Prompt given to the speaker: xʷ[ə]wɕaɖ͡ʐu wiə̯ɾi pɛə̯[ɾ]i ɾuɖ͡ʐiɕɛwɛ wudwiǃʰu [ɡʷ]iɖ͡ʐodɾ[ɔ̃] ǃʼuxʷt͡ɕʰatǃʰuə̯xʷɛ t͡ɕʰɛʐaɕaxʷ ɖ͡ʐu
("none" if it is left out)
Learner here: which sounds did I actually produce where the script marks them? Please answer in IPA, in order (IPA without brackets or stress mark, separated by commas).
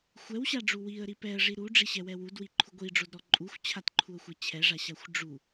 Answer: ɛ, ʐ, ɡʷ, ɔ